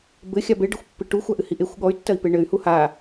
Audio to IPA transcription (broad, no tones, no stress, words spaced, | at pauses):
bɘxʲa beɖɘxʷpːɨ ʈuxʷaʔɨhi ʔexʷ ɠɔy̯tːɐi̯pe ɳɘy̯hu ha